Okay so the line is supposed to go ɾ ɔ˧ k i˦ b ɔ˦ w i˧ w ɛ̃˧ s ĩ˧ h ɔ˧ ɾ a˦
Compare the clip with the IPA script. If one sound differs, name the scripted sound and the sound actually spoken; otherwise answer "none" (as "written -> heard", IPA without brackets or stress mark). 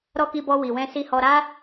ĩ˧ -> i˧